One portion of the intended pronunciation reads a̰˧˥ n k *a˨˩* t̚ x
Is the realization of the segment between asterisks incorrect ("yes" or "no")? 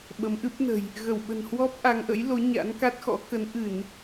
yes